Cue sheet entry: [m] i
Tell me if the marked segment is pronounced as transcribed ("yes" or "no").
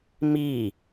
yes